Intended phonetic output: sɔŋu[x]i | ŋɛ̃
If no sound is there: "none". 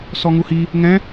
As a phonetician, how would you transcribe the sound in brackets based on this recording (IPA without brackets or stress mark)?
h